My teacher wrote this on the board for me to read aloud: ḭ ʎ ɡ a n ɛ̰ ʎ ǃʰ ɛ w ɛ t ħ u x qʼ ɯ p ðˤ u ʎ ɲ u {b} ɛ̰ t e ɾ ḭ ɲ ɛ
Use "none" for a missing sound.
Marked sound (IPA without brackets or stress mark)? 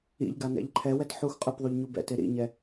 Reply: b